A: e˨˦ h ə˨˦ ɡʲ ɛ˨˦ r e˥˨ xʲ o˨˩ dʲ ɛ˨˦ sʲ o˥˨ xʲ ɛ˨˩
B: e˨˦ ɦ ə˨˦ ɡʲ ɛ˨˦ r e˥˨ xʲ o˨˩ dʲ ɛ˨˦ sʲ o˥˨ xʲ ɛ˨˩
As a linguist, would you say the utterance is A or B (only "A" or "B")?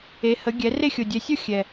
A